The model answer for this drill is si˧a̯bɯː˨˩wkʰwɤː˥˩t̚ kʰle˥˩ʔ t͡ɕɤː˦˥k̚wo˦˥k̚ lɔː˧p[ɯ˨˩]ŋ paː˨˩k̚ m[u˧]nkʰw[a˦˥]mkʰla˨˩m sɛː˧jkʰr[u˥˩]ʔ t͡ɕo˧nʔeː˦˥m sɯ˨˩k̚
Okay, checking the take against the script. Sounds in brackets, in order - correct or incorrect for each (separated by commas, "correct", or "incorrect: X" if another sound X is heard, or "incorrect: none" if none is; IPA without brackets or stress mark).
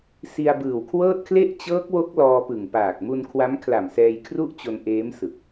correct, correct, correct, correct